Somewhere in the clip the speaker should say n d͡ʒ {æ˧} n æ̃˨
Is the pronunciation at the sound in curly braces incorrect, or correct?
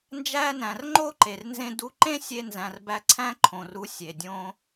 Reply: correct